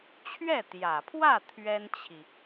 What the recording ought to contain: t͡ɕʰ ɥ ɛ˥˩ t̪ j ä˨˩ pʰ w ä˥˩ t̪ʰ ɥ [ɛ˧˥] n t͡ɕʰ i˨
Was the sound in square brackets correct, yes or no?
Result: no